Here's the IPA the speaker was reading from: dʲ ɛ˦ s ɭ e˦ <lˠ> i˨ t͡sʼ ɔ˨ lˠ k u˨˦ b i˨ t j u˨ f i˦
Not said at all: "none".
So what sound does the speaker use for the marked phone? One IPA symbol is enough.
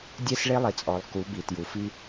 lˠ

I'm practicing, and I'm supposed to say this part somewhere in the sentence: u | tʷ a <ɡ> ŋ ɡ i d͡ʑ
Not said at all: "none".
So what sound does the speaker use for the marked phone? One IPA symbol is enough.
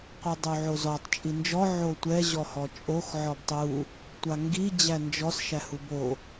none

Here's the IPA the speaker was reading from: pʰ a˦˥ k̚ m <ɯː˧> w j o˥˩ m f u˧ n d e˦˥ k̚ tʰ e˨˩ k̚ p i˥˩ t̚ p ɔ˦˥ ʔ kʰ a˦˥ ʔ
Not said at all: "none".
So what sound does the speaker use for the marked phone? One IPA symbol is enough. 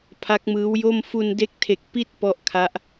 ɯː˦˥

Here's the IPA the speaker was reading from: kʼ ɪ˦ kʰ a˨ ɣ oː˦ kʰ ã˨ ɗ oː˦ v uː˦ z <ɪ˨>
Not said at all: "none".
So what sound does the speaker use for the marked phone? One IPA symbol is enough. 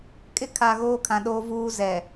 ɛ˨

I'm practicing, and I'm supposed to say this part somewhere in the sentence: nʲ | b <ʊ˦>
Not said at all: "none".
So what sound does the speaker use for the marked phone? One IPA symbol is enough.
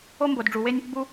u˦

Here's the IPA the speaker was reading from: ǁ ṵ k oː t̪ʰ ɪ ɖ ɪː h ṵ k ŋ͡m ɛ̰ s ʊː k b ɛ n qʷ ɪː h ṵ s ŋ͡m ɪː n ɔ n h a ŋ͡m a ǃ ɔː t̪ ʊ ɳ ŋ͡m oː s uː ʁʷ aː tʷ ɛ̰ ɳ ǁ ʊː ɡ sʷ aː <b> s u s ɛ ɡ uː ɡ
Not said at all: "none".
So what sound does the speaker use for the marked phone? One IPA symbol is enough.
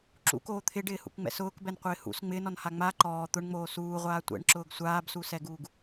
b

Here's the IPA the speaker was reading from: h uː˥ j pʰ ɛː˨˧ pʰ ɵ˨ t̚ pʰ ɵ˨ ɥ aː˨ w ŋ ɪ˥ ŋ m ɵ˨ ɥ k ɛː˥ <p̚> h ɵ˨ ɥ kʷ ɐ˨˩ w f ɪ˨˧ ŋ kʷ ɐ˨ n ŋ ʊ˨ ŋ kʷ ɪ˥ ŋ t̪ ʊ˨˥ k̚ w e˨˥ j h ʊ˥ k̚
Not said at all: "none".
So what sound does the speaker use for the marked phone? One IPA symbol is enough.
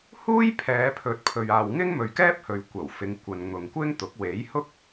p̚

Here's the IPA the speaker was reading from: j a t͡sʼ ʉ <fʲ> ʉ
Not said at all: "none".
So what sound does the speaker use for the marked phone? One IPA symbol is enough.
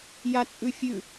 fʲ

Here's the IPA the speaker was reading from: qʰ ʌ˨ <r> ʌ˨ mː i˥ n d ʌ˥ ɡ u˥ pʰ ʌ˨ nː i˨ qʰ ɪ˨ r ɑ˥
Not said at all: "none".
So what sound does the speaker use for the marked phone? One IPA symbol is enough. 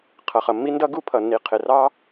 χ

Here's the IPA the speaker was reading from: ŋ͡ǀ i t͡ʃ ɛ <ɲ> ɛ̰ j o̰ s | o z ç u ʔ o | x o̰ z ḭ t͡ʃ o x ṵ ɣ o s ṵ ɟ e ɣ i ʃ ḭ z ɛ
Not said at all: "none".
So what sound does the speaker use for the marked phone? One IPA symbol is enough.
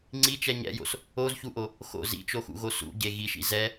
ɲ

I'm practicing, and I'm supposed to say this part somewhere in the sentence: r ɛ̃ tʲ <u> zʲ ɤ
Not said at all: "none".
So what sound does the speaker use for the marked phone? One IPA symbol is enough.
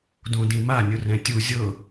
u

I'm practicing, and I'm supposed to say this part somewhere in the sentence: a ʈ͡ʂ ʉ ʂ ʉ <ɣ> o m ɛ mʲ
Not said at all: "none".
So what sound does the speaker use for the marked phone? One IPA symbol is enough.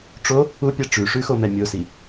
x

